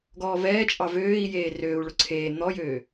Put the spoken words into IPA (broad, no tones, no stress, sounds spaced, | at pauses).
ɡ ɔː v ɛː t͡ʃʼ ɑ v øː i̯ j eː r øː u̯ ɭ ʊ ǀʰ eː n̪ ɔ j øː